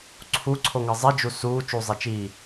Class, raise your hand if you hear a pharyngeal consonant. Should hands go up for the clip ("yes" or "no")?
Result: no